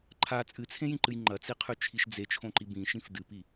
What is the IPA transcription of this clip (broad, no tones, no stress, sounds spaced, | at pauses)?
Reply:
ǃʰ a t͡sʼ ɨ t͡sʰ ẽ j ĩ ǃ ɨ j ŋ͡ǃ ɐ t͡s i qʰ ʉ t͡ʃʰ i ʃ d͡z e t͡ʃʰ õ ǃ i b ĩ ʃ ĩ f d ɨ p i